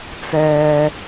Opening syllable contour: low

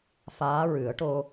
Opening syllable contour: rising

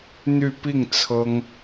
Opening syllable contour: falling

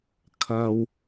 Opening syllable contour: low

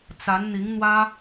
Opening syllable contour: rising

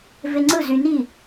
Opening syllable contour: high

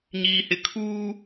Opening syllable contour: low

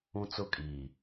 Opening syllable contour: high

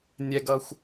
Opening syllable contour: low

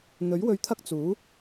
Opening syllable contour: rising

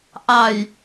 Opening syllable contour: low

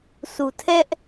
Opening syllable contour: low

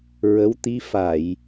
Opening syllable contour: rising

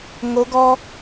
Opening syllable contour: rising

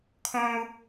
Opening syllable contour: high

